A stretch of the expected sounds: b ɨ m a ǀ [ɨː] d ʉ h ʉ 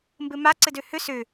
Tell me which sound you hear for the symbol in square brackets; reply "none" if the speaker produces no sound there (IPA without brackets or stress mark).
ɨ